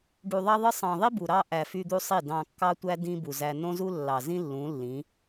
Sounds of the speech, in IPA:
ɖu˨ðˤɑ˦ðˤɯ˦ sˤɑ̃˨ðˤi˦ bu˨ɾɑ˦ʔæ˨ fy˦d̪u˦sˤi˦˨ dɑ̃˨kːɑ˦tʷæ˦ dĩ˦bu˨ zæ˨nõ˦zu˦ lːɑ˨zĩ˦ lːũ˨˦lːĩ˨˦

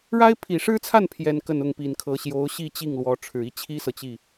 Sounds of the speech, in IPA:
ɻa˥ɪ̯ pʰi˨˩ʂɻ̩˥t͡sʰa˥˩n pʰjɛ˥nkə˥˧nʊ˥˩ŋ pi˨˩nkʰɤ˧˥ ɕjo˧˥ʊ̯ ɕi˥˧t͡ɕi˥˩ŋlwɔ˧˥ ʈ͡ʂʰɻ̩˨˩i˥˩t͡ɕʰi˥sɤ˨ t͡ɕi˥˩

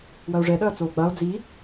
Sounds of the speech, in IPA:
wɐo̯ʐɛɗɐː t͡soːɡ͡bao̯ d͡zi

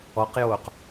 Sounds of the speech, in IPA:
ɔqjoːq

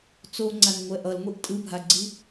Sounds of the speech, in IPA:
t͡soŋ͡ǀanŋʷɛ ʔʌlŋʷiʔ tʼɯbʱaɡ͡ǀi

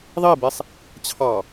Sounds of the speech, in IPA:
ðˤibesˤ | t͡ɕʰɑ

